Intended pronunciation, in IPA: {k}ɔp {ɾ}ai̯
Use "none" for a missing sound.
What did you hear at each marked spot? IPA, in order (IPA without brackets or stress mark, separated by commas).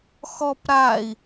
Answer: x, ɾ